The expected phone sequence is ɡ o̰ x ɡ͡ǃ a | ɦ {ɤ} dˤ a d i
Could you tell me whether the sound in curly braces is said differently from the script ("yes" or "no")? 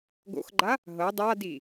no